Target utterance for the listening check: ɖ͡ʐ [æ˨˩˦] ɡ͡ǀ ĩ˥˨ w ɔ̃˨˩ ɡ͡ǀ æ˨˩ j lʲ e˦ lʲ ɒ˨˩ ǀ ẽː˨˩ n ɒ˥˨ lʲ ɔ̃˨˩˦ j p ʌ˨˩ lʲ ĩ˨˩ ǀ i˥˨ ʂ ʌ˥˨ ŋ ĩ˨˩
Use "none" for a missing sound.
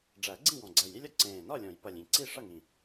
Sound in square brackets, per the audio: æ˨˩˦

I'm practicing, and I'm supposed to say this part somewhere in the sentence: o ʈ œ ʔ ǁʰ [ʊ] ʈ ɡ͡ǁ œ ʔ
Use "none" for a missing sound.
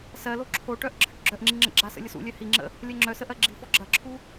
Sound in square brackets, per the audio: ə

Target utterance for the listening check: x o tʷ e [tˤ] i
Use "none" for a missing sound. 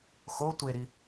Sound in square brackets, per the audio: ɾ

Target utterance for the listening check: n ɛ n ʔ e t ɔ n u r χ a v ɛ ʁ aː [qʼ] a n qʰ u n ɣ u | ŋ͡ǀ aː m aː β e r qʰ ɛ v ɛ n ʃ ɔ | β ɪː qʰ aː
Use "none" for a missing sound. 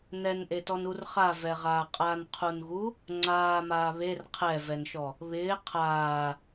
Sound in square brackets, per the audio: qʼ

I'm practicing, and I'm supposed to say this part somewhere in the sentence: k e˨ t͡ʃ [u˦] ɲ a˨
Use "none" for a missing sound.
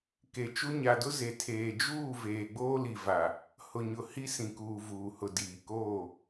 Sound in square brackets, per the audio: u˦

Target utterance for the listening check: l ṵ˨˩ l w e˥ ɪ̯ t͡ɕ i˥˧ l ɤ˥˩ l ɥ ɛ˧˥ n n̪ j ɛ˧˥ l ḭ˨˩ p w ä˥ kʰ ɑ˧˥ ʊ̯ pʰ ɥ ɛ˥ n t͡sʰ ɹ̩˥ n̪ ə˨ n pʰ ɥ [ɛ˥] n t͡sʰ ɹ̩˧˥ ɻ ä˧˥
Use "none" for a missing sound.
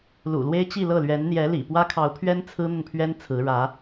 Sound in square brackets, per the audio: ɛ˥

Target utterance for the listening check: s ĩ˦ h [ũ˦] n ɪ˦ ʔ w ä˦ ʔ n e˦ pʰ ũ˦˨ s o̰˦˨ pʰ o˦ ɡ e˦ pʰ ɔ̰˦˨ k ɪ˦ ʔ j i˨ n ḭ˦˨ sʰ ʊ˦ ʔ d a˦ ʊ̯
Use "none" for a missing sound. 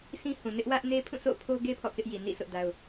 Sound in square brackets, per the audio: ũ˨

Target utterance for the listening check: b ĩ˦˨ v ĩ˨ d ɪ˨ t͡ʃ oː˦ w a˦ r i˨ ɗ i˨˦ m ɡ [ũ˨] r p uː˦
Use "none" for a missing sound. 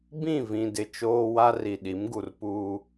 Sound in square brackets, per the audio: u˨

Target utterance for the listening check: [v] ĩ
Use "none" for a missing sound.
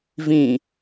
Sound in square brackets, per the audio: v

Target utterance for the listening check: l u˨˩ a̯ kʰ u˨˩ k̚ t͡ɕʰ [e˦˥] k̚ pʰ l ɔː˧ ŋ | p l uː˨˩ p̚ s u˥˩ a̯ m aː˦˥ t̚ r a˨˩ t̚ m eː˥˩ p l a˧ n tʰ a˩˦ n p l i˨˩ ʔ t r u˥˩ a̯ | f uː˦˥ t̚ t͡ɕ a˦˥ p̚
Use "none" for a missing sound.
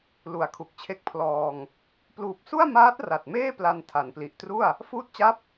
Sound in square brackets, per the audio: e˦˥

